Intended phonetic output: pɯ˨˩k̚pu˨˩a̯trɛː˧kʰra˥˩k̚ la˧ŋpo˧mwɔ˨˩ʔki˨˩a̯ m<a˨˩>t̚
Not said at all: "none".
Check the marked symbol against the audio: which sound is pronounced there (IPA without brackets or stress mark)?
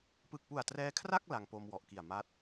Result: a˦˥